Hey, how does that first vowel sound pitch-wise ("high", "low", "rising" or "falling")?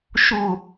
falling